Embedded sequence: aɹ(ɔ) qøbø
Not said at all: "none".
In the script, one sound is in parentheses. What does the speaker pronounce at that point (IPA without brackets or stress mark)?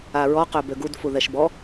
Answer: ɔ